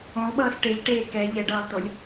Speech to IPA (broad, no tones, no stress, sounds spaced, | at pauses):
õ lˠ ɓ ʌː s ʈ e ʎ ʈ eː k ɛ ʎ ɛ ɖ ʌː lˠ t o lʲ